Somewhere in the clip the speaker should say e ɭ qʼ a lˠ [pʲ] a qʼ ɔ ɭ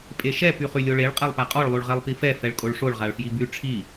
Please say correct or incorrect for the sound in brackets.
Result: incorrect